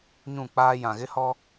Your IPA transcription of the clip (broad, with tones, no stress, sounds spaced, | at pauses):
ɲ ũ˦˨ k͡p aː˦ j ã˨ ɣ ɪ˦ h ɔ˦